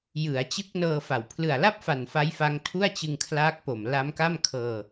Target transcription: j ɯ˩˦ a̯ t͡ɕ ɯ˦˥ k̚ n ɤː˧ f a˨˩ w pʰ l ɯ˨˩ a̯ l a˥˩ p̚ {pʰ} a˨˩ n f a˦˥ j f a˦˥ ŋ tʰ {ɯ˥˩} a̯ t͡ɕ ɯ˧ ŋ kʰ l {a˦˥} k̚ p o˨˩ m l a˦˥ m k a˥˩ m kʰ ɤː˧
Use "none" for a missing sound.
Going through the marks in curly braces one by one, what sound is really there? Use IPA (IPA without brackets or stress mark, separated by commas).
f, u˥˩, aː˦˥